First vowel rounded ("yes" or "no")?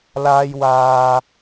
no